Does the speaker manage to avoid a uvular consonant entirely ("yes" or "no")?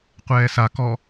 no